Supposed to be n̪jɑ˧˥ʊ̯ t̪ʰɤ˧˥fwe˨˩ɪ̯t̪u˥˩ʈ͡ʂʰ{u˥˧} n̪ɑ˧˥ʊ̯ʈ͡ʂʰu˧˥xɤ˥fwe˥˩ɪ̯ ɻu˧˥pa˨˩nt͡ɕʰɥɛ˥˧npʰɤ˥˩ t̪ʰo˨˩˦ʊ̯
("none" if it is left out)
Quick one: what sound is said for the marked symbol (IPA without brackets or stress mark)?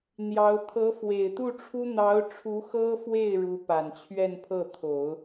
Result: u˥